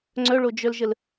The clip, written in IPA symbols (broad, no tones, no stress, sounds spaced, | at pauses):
ŋ͡ǀ œ ɭ o d͡ʒ œ l ʒ ə l